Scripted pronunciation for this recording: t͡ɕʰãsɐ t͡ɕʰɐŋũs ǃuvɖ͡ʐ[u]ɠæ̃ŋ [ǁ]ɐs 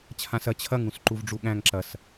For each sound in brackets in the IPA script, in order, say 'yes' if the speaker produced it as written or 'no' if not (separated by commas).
yes, yes